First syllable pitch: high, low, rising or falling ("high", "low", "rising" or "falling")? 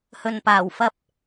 low